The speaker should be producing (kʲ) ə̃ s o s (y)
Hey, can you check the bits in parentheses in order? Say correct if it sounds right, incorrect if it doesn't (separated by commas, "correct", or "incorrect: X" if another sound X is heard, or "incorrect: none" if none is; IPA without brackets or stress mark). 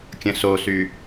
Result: correct, correct